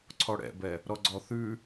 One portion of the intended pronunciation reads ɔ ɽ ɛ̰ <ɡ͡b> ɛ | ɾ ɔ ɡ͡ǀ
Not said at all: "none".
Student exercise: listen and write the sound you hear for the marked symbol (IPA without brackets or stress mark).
b